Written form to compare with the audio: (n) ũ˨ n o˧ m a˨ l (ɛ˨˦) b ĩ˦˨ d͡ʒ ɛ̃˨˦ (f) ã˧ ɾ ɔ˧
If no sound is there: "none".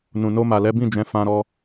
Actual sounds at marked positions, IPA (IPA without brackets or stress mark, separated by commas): n, ɛ˨˦, f